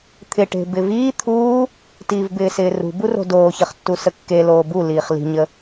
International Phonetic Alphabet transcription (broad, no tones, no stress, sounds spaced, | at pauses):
t̪ʰ ɪ ʈ e̤ b ɪ v iː t̪ʰ uː | t iː v b ɪː s ɪː r ṳ b u r o̤ d oː ç ə χ tː u s ə kː e l oː b u l iː χ l i̤ ɲ ə